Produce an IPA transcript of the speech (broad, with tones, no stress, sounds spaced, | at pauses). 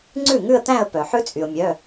ŋ͡ǀ ʉ˥˩ ŋ ʉ˥˧ ə̯ t̪ æ̃˥˧ ə̯ p œ˩ ħ ʉ˦˥ t͡sʼ y˩ ʊ̯ mʲ œ˩˧˩